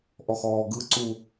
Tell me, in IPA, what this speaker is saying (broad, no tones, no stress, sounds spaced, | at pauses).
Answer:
ʔ ɔ x ɔː ɡ ɯ ǀ u